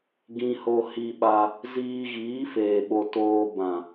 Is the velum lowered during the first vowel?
yes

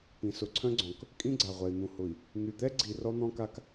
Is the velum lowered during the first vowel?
yes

